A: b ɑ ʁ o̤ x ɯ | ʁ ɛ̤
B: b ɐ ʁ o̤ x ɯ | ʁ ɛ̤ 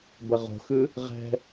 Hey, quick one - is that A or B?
B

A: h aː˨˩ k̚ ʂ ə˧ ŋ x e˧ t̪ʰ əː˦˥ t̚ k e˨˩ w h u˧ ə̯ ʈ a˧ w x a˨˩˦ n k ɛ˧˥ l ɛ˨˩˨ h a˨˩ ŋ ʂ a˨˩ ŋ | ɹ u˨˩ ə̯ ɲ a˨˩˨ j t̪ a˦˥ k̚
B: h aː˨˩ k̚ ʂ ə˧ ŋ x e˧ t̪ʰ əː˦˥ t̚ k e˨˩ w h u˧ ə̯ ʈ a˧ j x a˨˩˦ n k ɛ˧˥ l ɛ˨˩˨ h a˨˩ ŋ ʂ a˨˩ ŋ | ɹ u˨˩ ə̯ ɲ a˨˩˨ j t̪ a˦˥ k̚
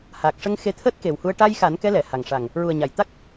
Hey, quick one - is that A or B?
B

